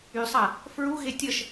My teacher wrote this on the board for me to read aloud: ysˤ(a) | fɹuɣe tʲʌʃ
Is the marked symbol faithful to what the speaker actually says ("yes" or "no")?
yes